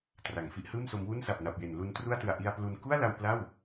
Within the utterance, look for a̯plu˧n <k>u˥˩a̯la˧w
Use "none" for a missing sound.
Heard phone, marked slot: k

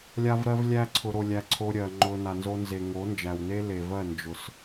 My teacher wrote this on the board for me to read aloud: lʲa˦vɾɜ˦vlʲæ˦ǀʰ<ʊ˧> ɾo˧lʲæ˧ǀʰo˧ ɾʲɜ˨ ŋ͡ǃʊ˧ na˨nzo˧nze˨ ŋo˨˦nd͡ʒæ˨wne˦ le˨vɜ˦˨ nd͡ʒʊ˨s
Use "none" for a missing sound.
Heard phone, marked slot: ʊ˧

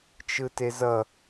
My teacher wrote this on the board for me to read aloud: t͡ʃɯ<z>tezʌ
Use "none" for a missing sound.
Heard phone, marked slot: none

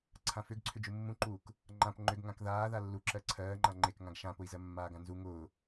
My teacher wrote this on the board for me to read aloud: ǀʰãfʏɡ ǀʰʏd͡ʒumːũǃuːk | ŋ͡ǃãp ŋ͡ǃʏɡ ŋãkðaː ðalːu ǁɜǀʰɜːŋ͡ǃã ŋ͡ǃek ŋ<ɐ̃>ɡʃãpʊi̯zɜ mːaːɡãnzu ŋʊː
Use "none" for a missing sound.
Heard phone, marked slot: ã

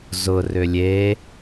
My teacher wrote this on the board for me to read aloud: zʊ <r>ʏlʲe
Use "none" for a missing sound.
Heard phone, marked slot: r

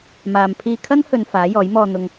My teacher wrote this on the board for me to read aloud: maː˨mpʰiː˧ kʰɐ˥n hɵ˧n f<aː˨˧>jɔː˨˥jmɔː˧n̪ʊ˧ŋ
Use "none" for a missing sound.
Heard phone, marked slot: aː˨˥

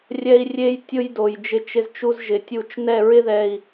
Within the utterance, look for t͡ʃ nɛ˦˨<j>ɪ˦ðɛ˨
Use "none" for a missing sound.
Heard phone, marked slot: ɹ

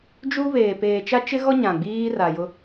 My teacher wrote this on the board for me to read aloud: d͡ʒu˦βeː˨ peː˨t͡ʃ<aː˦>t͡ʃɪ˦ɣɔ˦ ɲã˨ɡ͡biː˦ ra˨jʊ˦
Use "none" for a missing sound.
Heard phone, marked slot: a˦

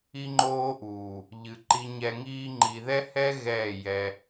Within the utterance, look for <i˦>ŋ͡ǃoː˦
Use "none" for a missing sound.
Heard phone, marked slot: i˦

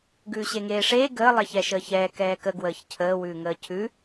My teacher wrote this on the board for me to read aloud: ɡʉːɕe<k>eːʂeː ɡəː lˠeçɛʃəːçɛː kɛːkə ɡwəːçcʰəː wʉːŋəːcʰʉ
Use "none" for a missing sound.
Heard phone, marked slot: ŋ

